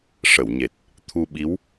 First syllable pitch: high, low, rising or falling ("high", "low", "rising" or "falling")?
low